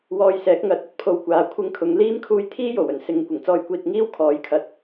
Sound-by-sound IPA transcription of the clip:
w ɔː˧ j s ɛː˨˥ k̚ ŋ ɐ˨˥ t̚ ɐ˥ t̚ pʰ o˧ w kʷ aː˨ kʷʰ ɪ˧ ŋ kʰ ʊ˨˧ ŋ l iː˥ m kʰ uː˧ j t̪ʰ iː˥ j o˨˩ w ɵ˨˩ n s ɪ˨˧ ŋ kʷ ɪ˨˩ ŋ t͡s ɔː˧ j kʷ iː˧ t̚ ŋ iː˥ w kʰ ɔː˨˥ j kʰ ɐ˨˥ t̚

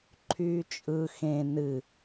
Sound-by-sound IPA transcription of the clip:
ǃʰ yː t͡ʃʼ ɯ x ẽ n ɨ

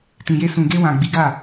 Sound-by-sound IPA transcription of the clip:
t ĩ˨ j e˧ s ũ˨ ɡ e˧ w ã˨ ɡ͡b i˨˦ ɡ a˦˨

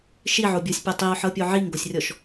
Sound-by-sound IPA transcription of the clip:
ʃ i ʕ o bʲ o sʲ pʲ ɛ tˤ i o̯ ħ ɤ pʲ o ʕ i ŋ ɡ o sʲ rʲ ɔ ʃ

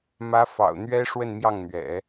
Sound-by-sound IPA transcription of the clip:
m ä˥ f ɑ̰˨˩ ʊ̯ n̪ ɥ ɛ˥ ʂ w ə˥˧ n m j ɑ˥˩ ŋ n̪ ɥ ɛ̰˨˩˦

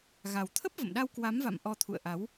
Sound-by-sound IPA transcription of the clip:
ɣ a˨˩ w t̪ʰ ə˦˥ p̚ v ə̰˧˨ m ɗ a˧ w k w a˨˦ m v a̰˧˨ m ʔ ɔ˧ t̪ʰ ṵ˧˨ ə̯ ʔ a˨˦ w

